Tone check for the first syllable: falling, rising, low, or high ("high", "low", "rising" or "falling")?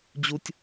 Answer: high